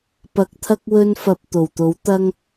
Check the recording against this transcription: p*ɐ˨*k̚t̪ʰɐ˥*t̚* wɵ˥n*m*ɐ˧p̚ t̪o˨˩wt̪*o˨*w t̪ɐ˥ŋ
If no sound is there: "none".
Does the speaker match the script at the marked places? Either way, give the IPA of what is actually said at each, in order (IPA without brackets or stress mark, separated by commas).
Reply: ɐ˨˥, k̚, f, o˨˥